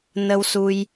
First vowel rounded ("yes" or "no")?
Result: no